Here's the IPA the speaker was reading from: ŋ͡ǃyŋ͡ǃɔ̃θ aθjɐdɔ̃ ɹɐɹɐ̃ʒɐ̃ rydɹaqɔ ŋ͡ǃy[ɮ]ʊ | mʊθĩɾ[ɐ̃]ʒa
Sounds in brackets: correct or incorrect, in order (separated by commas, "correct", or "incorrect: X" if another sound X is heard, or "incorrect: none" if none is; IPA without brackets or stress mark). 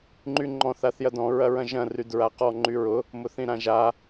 incorrect: ɹ, incorrect: ã